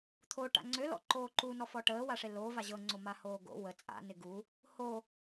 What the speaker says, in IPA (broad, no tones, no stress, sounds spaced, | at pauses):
t̪ʰ o ʈ a̰ ŋ͡ǀ ø l ɔ̰ ǃ oː ǃ u n ɔ f ɔ ʈ əː w a ʂ e l o v a ʑ ɤ ŋ͡ǀ o m a h oː ɡ o̰ w ə t͡sʼ a̰ n ɪ ɡ u | h o